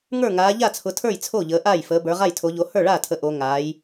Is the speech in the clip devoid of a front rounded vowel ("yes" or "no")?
yes